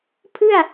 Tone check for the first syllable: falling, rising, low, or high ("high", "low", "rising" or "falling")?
falling